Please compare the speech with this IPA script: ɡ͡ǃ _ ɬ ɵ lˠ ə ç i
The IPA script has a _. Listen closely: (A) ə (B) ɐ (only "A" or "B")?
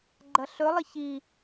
B